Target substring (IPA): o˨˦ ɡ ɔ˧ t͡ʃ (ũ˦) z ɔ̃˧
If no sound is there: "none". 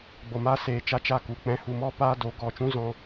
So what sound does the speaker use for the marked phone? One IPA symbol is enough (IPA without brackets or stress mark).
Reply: ũ˦